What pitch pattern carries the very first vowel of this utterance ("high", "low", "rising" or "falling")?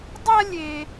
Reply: high